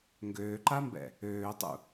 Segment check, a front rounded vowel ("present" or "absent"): present